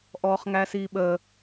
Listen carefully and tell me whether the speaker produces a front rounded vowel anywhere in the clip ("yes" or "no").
no